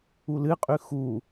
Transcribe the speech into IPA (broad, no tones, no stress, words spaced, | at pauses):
ulɨqʼʉ xu